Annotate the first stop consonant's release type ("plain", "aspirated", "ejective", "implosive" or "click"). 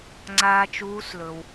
click